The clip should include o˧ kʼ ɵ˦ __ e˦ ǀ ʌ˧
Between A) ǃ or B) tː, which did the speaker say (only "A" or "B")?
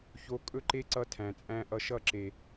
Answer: A